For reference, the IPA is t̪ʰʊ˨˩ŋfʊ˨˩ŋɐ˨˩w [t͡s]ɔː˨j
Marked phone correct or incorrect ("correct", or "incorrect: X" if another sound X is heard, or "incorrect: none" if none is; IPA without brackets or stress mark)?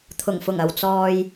correct